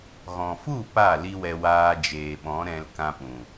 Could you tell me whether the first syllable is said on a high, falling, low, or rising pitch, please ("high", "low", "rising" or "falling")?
low